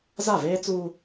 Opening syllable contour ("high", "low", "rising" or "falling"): falling